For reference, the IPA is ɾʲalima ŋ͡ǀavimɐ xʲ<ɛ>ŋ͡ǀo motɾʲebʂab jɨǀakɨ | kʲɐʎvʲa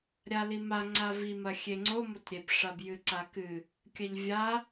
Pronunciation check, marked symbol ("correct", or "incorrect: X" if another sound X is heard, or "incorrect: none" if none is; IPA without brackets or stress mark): incorrect: e